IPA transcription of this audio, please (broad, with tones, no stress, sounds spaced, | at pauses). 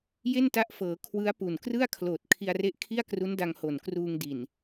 j e˥˩ n t a˦˥ ʔ f ɤː˩˦ kʰ w ɯ˦˥ a̯ p u˨˩ n k r ɯ˥˩ a̯ kʰ l oː˨˩ t̚ kʰ i˧ a̯ r e˦˥ ʔ kʰ i˥˩ a̯ k r u˦˥ n d a˧ ŋ h o˨˩ n k r uː˧ ŋ d i˨˩ n